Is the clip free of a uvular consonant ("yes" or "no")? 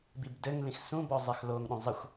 yes